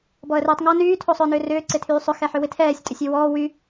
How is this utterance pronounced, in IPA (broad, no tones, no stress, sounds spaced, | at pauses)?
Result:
b ɔ ə̯ r ɪː tˤ ŋ ɔ n yː tʰ o sˤ ʏː n ʏː r ʏː ǀ ɪ tʰ yː sˤ ʏ x ɛ ħ ʏ w ɪ tʰ ɛː sʲ tʼ ʏ sʲ y w ɔː w y